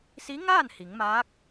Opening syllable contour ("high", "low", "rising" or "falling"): rising